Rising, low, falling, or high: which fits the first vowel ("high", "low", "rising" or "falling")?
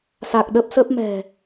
low